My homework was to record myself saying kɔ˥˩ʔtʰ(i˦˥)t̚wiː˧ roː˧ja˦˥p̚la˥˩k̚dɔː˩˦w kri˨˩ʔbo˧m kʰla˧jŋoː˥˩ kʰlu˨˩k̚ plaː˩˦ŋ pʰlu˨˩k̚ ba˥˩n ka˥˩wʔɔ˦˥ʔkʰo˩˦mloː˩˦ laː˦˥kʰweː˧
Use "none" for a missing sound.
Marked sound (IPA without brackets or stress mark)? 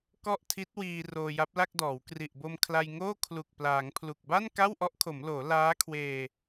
i˦˥